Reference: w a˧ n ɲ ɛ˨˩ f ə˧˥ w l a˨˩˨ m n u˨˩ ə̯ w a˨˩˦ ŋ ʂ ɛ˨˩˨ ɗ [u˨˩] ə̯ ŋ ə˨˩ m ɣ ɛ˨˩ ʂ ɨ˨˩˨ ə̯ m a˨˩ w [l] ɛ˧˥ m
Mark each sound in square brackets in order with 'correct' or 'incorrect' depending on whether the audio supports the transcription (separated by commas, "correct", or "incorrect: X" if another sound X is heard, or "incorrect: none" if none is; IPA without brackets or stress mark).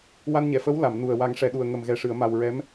correct, incorrect: ɹ